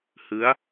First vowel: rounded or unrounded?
unrounded